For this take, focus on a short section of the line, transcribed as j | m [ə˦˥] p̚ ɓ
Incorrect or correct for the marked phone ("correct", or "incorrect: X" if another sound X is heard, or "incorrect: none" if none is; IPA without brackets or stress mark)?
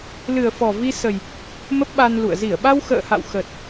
correct